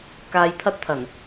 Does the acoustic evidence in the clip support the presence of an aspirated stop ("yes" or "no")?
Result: yes